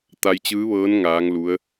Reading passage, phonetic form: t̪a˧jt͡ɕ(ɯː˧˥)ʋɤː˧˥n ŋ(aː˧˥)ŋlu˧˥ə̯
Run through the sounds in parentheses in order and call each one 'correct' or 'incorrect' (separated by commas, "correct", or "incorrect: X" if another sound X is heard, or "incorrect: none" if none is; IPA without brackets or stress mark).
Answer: correct, correct